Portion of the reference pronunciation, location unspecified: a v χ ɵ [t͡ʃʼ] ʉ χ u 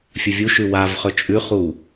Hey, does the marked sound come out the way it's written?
yes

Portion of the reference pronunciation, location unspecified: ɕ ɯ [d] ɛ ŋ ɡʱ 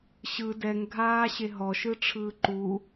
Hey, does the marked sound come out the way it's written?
yes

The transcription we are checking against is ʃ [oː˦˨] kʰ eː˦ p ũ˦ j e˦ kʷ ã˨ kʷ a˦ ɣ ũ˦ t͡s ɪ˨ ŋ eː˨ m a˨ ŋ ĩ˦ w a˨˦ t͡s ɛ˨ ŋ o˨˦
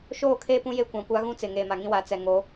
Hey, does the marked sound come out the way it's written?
yes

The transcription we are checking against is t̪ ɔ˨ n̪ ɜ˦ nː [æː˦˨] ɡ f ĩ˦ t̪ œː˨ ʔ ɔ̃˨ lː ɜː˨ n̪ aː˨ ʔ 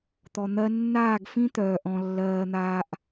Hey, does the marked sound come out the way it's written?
no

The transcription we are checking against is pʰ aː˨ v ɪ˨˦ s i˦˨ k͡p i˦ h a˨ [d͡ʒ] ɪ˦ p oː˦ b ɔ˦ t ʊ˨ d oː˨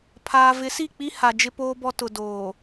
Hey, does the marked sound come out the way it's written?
yes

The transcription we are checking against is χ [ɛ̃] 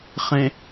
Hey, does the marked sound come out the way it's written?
no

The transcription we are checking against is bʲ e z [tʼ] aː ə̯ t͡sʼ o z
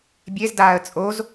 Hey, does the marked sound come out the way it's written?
no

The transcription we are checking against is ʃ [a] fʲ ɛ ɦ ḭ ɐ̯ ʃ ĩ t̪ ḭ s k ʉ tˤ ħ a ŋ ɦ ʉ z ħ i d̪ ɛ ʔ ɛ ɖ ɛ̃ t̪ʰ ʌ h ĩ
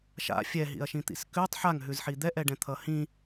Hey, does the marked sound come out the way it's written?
no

